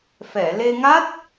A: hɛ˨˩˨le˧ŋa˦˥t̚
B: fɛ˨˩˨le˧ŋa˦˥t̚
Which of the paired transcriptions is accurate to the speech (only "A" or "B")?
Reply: B